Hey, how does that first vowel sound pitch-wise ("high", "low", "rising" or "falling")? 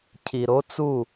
low